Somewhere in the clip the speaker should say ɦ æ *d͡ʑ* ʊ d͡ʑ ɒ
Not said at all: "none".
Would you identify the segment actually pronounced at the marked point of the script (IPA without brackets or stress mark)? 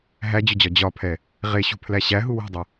d͡ʑ